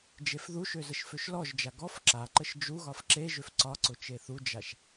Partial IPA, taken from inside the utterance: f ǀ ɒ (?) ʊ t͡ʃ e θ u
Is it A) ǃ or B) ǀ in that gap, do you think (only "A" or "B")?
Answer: B